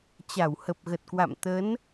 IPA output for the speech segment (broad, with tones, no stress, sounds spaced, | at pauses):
t͡ɕ a˧˩ w h ə˨˩ p̚ ɣ ə˨˩ t̚ k w a̰˧˨ m t̪ ə˨˦ n